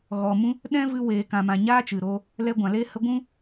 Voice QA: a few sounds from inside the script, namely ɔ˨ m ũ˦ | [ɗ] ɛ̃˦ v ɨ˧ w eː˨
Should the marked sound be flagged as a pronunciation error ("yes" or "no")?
no